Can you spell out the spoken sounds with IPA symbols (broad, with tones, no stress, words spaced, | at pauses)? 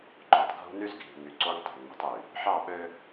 ǃo˨tˤɡʱṳ˦ny˦zɡʱi̤˨ ŋy˨ǀo˦ŋtˤe̤˨nmi̤˦tˤ y˨ | ħɑ˦˨ɓø˦